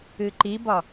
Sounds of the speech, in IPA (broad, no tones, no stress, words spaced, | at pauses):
ɨǃibɒ